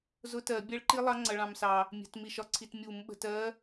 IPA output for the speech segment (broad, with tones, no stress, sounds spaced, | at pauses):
z ʊ˦˥ t ɜ˧˩˧ bʲ ɛ˦˥ ɭ ǃ i˦˥ lˠ ɑ˦˥ ŋ͡ǀ ʌ˧ ɭ ɑ̃˧ m s ɑ˧ | mʲ ɛ̤˧˩˧ t m i˧ ʃ ɒ˧ ǀʰ i˧ t mʲ u˧˩˧ m ɓ ə̤˧ t ɜ˦˥